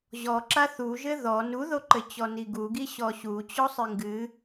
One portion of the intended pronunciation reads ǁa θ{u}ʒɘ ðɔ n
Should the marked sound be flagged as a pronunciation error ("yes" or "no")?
no